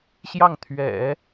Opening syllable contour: falling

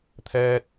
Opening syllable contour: high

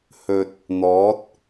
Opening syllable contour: low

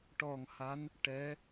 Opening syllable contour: low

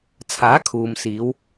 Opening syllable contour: rising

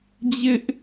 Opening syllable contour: high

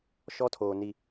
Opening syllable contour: high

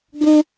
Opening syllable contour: high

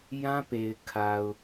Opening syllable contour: high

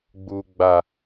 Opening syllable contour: low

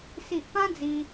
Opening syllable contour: low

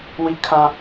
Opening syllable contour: high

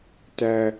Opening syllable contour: high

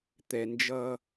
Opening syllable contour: low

